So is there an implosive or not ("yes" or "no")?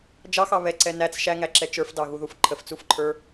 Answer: no